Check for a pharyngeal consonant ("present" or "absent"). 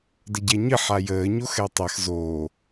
present